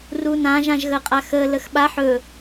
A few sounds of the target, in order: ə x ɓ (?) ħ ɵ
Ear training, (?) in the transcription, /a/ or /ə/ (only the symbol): a